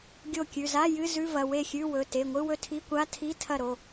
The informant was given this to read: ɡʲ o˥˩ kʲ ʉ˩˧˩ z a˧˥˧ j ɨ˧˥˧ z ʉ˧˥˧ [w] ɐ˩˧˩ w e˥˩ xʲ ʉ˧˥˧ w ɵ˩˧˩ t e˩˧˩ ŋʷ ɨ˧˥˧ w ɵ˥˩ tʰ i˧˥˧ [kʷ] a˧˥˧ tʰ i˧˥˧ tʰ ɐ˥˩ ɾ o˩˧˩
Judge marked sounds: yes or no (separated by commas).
no, yes